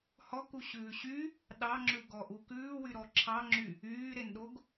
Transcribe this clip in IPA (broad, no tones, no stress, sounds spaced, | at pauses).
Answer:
h ɔ k u ɕ ʉː ɕ y | ɗ ɑ ŋ͡ǁ ʉ ɡ ɔ ʔ u k ʉː w y ɾ ɔ ǁʰ ɑ ŋ͡ǁ y | yː ɾ e n ɗ o ɡ